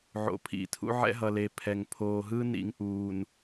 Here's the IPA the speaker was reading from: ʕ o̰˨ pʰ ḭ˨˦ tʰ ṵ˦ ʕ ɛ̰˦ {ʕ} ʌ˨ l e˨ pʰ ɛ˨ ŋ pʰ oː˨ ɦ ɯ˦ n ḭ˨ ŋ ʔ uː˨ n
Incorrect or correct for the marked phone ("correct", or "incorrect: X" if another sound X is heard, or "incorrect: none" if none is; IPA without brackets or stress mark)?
incorrect: ɦ